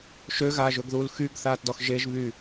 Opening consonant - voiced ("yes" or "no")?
no